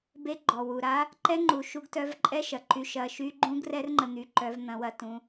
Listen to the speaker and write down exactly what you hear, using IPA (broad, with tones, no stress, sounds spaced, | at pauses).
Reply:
b e˧ ɡ͡ǃ ɔ˨ w u˨ ɾ a˦ | ǃ ɛ˦ ŋ͡ǃ u˨ ʃ u˧ ɡ t œ˧ v ǃʼ ɛ˦ ʃ ɐ˨ ǃ y˧ ʃ ɐ˧ ʃ y˦ ɡ͡ǃ ũ˦ ɡ r ɛ˦ r ŋ͡ǃ ə˧ n̪ y˧ ǃ œ˧ v n̪ ɐ̃˧ w ɐ˧ t ũ˧